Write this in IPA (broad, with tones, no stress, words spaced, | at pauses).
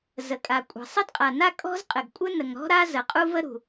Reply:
zə˩kʼa˩kʷʼə̤˩ sˤɘ˥dqʼa˩na˥ kʼɔ̤˥zqʼɘ˩ɡ kʷʼɘ˥nə˩ŋɾɔ̤˥ɾa˥ zə˩qʼu˥və˥ ɾṳ˩